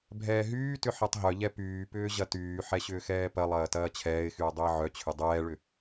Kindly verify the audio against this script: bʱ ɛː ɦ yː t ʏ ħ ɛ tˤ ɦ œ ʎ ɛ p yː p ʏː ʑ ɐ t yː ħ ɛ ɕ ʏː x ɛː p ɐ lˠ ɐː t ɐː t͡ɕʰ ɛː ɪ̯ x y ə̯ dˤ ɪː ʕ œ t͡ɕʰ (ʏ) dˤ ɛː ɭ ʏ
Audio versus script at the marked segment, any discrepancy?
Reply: no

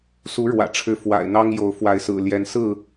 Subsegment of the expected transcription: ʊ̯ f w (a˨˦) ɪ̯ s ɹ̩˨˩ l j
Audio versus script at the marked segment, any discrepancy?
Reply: no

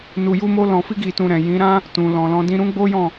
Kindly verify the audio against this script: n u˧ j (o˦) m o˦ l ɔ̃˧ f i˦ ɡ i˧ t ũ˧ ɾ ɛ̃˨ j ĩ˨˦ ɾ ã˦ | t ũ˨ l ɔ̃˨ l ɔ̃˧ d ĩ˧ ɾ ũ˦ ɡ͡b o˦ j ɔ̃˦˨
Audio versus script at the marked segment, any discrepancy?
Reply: yes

